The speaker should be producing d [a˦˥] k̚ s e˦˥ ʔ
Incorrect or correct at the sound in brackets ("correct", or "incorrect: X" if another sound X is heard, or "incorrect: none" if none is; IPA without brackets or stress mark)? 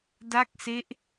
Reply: incorrect: a˥˩